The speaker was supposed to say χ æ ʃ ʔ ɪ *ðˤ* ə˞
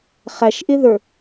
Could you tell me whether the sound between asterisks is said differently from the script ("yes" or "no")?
yes